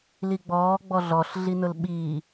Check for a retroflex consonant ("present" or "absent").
absent